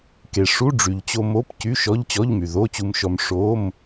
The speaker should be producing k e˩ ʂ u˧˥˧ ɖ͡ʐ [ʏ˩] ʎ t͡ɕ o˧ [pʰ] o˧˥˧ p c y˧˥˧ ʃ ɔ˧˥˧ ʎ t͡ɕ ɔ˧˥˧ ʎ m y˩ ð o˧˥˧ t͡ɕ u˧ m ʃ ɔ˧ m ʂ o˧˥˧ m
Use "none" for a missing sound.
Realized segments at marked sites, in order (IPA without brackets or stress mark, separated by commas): y˩, m